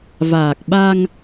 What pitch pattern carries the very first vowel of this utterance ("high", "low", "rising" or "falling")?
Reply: low